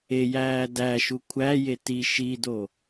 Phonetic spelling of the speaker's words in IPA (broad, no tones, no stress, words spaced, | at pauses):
ejæː dæʃu kʷʰæje ti ʃido